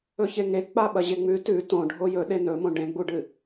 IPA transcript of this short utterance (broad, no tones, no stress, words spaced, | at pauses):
ɵçeŋe k͡paɓɐʑeŋ͡mʉ tʉ tõ ɖʱojɵ ɗenɵmõ ɖẽɡ͡buɖɨ